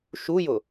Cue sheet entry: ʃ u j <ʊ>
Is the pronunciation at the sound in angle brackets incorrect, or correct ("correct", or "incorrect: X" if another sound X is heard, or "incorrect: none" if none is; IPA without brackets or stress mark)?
correct